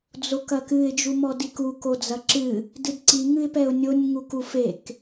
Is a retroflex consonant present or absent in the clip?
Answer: absent